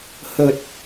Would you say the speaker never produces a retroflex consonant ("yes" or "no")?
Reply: yes